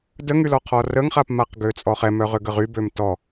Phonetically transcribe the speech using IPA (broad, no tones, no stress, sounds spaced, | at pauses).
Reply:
d ə ŋ y l ɔ qʰ ɔ r ə ŋ χ a p m a q ɡ ø t͡sʼ ɔ χ ɛ m œ ʁ ø ɡ ə ʁ y b ø m t ɔ